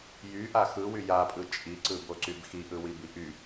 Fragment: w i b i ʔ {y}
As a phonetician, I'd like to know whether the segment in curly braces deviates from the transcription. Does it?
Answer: no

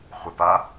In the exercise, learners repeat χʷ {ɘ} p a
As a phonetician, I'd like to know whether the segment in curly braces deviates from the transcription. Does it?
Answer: no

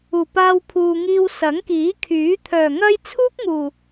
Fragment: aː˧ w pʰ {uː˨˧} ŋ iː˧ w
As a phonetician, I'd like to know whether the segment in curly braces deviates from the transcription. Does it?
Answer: yes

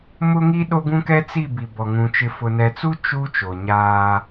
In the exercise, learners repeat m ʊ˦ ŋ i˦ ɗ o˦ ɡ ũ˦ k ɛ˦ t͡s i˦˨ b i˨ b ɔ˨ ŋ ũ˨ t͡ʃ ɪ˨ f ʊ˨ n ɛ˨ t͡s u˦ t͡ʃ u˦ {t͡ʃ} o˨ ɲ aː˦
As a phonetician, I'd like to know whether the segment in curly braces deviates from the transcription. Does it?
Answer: no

